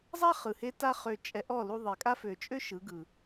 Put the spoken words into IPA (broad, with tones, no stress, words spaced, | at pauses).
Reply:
zˤa˦χɯ˨he˧ ta˦χø˧ t͡ʃʼɛ˧ʔɔ˦˨ lu˧ðˤe˨kʼa˦fø˨ t͡ʃʼø˦ ʃɯ˨˦ɡɯ˨